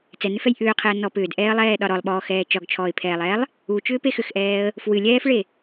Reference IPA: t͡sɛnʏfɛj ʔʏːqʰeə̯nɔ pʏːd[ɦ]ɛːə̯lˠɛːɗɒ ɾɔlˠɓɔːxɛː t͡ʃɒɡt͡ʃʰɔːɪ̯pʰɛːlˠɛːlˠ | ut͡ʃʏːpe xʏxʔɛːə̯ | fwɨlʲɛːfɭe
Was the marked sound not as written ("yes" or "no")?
yes